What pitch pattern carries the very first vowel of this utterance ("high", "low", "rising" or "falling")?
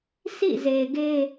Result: falling